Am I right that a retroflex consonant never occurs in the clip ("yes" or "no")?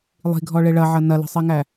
no